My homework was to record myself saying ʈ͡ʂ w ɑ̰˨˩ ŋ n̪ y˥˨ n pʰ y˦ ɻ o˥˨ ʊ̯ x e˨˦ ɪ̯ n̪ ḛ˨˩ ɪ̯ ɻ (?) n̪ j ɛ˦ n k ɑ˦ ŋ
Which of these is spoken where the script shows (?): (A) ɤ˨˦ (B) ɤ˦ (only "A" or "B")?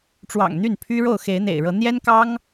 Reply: A